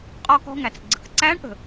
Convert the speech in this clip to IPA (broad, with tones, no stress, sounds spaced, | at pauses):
qʼ ɔ˧ k ɔ̤˧ ŋ æ˩ t͡s ɡ͡ǀ ə̤˩˧ k ǀ æ˧˥ ɳ ʔ ə̤˩